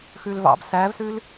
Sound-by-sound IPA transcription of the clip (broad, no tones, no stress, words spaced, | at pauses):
xʉlvɑ̰b sævsʉl